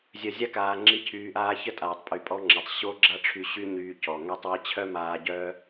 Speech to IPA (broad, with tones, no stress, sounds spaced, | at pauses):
zʲ œ˨ zʲ a˦ k aː˨ ŋ͡ǁ i˧ cʰ yː˧ ʔ aː˦ ç ə˦ tʼ aː˨ tˤ pʼ y˨ pʼ ɔ˦ ŋ͡ǁ ɛ˨ tˤ ɕ o˦ ɡ͡ǁ a˦ ʈ͡ʂʰ y˧ ɕ y˦ ɲ yː˧ c ɔ˨ ŋ ɛ˦ tˤ w i˧ t͡ɕʰ œ˦ m aː˧ ɟ œ˦